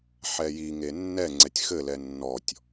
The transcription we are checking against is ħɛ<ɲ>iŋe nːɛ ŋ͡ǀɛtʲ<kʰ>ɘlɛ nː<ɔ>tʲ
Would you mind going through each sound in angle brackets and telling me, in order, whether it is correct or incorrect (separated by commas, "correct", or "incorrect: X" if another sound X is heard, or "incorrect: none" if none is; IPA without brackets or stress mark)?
incorrect: j, incorrect: x, correct